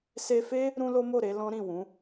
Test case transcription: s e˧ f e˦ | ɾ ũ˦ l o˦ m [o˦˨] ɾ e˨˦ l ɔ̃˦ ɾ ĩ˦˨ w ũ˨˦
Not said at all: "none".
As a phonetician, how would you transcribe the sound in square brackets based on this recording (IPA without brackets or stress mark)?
o˦˨